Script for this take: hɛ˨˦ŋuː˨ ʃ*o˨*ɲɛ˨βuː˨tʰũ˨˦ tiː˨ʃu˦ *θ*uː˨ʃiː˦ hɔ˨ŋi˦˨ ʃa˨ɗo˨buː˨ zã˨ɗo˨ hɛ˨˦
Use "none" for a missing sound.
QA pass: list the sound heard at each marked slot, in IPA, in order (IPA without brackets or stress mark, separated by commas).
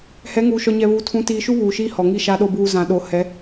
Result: ɔ˨, β